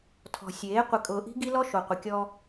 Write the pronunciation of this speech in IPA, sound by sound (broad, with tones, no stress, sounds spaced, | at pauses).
tʰ ɔ̤˨ sʲ eː˨˦ qʷ ɪ˨ kʼ ʊː˨ ʔ i̤˦ ɡ i˦ l ɔ˦ ʃ o˨ qʷ ɪ˨ kʲ ɔ˦